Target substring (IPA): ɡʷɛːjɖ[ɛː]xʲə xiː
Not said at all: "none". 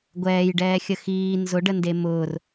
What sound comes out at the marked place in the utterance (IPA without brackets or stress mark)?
ɛː